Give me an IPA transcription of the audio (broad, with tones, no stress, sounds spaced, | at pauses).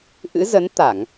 ʔ ɨ̰˧˥ z ə˨˦ n t̪ a˧˩˨ ŋ